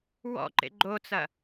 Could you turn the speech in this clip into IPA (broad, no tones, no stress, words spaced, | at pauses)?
wɔ̰ǃḛ ɡ͡ǃot͡sɐ